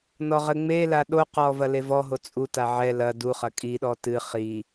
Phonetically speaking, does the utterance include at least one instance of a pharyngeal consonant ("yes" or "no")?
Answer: yes